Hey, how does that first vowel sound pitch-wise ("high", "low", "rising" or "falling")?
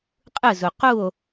falling